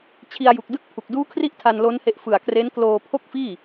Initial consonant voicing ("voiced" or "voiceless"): voiceless